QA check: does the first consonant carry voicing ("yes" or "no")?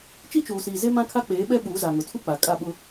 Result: no